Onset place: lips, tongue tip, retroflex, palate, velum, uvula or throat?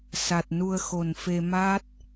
tongue tip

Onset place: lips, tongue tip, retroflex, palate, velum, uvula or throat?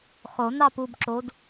uvula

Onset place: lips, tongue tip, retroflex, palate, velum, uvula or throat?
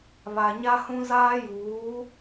lips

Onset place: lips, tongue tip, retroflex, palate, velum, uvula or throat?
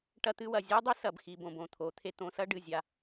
retroflex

